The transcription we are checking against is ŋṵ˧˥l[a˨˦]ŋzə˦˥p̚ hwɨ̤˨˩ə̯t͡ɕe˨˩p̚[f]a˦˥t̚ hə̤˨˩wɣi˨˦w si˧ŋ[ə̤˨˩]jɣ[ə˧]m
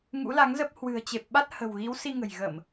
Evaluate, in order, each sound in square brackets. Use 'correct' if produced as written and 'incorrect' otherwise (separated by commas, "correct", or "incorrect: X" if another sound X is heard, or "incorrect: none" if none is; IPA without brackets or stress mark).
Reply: correct, incorrect: ɓ, correct, incorrect: ə˧˩˨